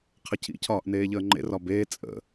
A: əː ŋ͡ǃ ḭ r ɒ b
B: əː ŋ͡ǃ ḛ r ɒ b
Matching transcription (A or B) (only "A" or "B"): B